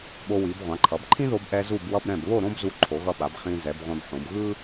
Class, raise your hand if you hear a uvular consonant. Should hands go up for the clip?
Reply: yes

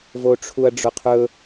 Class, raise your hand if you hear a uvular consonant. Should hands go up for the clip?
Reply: yes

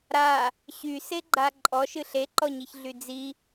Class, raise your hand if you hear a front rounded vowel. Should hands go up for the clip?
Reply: yes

